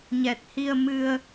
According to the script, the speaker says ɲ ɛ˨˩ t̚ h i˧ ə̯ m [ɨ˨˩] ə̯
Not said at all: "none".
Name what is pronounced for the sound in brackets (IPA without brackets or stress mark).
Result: ɨ˧